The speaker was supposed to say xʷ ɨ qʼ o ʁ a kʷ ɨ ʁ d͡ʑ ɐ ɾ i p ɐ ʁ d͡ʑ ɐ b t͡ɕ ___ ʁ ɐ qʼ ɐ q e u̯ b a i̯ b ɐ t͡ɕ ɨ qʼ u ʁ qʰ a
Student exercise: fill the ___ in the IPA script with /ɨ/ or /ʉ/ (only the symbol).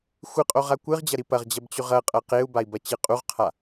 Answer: ʉ